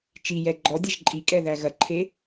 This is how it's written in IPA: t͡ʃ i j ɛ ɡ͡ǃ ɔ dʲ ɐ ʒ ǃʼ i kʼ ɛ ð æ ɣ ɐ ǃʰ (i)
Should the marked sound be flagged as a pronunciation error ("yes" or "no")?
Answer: yes